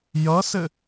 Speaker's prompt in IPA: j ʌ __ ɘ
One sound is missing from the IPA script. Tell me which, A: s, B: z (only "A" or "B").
A